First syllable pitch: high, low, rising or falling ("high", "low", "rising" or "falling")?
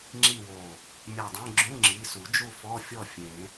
falling